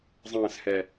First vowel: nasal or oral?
nasal